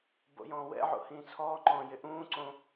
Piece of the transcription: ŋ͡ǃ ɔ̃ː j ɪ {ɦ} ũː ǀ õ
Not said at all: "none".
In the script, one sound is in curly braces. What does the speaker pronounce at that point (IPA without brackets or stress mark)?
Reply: ʔ